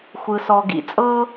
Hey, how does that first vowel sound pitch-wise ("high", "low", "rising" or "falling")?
low